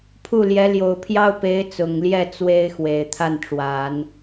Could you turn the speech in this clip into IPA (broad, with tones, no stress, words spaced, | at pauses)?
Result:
pʰu˥˩ljɛ˧˥ ljo˨˩ʊ̯pʰjɑ˥ʊ̯ pe˧˥ɪ̯t͡sʊ˨˩ŋljɛ˥˩ t͡swe˥ɪ̯xwe˨˩ɪ̯ t̪ʰa˥˩nʈ͡ʂwa˨˩˦n